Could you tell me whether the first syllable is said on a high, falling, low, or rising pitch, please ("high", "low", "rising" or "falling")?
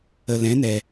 low